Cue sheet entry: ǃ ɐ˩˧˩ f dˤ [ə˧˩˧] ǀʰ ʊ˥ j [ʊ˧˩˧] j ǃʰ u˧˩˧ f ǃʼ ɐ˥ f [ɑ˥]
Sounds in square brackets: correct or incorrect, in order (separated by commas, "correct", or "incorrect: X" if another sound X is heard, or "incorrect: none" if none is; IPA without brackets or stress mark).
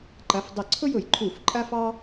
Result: correct, correct, correct